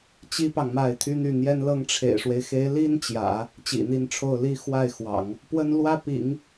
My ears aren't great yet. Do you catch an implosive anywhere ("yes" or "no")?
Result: no